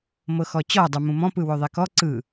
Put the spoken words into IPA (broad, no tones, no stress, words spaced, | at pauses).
mɤxɔt͡ɕɔ dˤumũmɔ̃ pɯwoðˤekɔ ǀɯ